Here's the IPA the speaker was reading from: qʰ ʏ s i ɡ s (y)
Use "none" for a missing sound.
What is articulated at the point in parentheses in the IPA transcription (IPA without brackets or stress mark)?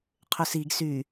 y